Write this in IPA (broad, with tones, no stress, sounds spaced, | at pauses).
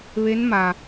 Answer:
ʋ e˧˥ n m a˩